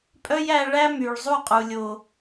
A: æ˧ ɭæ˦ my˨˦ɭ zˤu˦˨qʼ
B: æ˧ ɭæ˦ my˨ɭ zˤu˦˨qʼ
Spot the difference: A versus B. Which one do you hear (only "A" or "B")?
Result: B